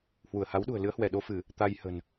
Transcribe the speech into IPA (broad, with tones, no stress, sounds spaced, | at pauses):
h w u˧˩ ə̯ h a˨˦ w ɗ ṳ˨˩ ə̯ l ɨ˨˦ ə̯ h w ɛ˧˩ ɗ o˧ f ɨ˧˩˨ | t̪ a˧ j h ə̤˨˩ n